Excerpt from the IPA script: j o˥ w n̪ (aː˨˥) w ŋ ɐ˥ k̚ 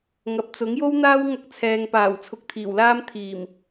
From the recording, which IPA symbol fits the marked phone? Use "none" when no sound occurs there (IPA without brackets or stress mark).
aː˥